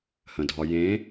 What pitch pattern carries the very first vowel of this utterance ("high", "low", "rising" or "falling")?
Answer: low